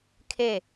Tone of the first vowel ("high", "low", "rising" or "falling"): falling